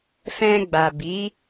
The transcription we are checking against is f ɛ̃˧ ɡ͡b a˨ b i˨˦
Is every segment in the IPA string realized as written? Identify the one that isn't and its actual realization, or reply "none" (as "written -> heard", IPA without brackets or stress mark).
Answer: none